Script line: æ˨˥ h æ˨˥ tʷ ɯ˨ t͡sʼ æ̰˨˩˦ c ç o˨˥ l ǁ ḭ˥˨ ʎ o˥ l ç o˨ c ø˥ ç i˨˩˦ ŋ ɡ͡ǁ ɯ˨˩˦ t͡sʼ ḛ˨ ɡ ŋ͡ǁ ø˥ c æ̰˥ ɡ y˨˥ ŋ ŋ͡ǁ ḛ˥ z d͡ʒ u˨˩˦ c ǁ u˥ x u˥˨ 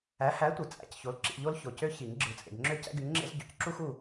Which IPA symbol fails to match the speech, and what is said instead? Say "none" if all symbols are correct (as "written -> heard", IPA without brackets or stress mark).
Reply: d͡ʒ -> ɟ